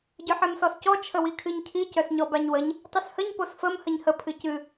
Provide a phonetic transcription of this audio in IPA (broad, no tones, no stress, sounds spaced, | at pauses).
ɟ œ ħ ɛ m s ɔ s c ɔ t͡ʃʰ ə w i kʰ ɨ ɲ cʰ i c œ s ɲ ɔ b a ɲ w ə ɲ | tˤ ɨ s h ə ɲ p o s f ə m h ə ɲ h ə pʰ ɨ c ɨ